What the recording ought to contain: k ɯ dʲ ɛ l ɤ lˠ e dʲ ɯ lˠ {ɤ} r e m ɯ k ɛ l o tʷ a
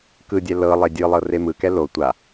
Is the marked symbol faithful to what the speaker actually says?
yes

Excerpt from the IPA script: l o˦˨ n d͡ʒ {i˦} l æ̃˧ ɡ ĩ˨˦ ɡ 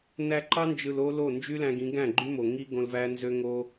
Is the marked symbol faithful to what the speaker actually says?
no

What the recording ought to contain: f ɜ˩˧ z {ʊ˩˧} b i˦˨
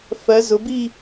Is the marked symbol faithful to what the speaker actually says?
yes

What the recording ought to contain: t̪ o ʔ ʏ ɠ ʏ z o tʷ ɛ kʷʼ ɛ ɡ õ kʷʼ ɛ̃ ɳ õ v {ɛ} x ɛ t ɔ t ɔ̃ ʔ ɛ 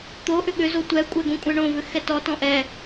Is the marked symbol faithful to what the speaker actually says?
no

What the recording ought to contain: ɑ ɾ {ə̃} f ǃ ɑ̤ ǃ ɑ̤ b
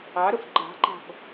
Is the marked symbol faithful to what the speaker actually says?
no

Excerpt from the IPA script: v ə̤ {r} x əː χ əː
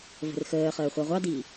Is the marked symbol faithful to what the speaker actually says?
yes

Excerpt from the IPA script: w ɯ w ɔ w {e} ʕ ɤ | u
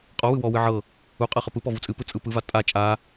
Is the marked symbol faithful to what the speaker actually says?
no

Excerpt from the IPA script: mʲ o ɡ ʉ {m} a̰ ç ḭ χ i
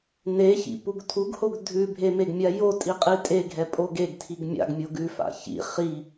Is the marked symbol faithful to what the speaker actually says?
no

